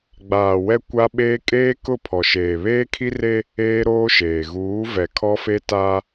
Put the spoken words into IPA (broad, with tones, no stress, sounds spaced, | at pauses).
ɡ͡b aː˨ w ɛ˦ kʷ a˦ ɓ eː˦ kʼ eː˦ k ʊ˦˨ pʰ ɔ˨ ʃ eː˨ β eː˦ kʰ i˦ r e˦ | eː˦ ɾ oː˦ ʃ eː˨ ɣ uː˨˦ v ɛ˨ kʰ ɔ˦ f e˦ t a˦